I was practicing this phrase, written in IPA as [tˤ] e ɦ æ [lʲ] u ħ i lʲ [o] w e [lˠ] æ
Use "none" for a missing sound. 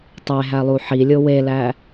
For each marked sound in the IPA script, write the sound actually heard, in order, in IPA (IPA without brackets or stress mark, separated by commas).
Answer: tˤ, lˠ, o, l